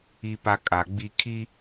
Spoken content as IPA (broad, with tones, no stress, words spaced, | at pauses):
i˦pa˦kʼa˨ɡ͡bi˦ kʰi˦